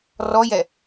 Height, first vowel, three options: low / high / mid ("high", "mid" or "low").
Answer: mid